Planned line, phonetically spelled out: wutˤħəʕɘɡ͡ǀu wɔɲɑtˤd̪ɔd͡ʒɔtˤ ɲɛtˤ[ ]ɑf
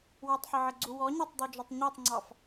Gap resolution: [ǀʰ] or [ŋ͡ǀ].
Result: ŋ͡ǀ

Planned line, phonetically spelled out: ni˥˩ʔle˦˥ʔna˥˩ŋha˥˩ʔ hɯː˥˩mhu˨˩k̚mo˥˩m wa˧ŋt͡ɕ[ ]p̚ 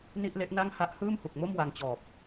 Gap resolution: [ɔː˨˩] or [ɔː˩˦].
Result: ɔː˨˩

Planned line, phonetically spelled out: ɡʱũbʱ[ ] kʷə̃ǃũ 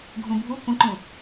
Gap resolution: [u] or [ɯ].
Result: u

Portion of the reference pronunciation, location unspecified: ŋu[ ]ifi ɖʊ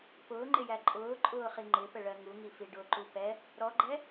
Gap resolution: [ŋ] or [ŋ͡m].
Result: ŋ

